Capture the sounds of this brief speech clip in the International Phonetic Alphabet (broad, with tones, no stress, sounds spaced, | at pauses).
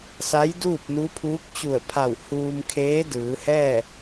s a˧˥ j d uː˥˨ p̚ n u˧˥ pʰ uː˧˥ k̚ t͡ɕ u˧˩ ə̯ pʰ a˧˩ w h uː˧ m kʰ eː˧˥ d ɯː˩˧ h ɛː˥˨